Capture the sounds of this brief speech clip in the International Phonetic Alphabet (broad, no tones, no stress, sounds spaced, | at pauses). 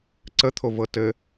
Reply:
ǀ ə t̪ʰ o v ɤ t ɘ